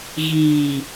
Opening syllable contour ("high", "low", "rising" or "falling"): low